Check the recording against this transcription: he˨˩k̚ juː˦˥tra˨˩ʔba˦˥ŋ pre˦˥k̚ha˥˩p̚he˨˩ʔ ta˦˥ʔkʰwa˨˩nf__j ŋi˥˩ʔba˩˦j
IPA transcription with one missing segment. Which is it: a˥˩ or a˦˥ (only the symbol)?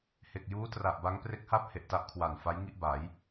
a˦˥